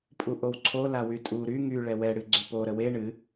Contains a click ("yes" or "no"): yes